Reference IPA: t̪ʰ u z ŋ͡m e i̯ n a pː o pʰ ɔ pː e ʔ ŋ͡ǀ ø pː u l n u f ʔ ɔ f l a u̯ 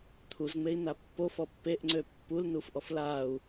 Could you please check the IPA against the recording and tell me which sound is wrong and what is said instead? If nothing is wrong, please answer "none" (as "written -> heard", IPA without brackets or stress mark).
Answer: pʰ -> f